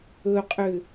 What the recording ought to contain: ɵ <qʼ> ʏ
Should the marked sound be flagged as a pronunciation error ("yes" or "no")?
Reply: no